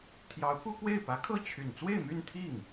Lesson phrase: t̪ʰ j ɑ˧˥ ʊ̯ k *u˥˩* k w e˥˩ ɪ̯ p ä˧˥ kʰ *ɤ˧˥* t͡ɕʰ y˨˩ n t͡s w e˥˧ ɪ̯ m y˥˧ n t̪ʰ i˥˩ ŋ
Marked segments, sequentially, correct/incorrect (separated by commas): incorrect, incorrect